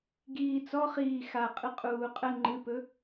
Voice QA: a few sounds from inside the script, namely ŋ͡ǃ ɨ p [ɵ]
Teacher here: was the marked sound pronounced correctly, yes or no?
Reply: yes